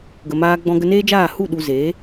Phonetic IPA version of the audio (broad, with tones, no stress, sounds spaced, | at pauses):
ɡ ə˨ m aː˧ ɡ͡b ɔ̃˧ ɡ ə˧ n eː˦ d͡ʒ aː˦˨ h u˦˨ ɗ u˧ z eː˨˦